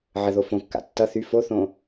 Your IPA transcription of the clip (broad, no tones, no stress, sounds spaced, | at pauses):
ʕ ə ð o f õ kː a̰ tː ʌ θ y f o θ õ